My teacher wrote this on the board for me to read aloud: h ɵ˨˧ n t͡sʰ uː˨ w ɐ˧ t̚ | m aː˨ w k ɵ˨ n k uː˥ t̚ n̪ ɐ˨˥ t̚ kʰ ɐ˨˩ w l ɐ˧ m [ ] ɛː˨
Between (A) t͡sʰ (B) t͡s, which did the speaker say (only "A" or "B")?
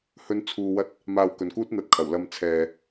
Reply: A